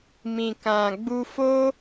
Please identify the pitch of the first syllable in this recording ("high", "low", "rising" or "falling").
low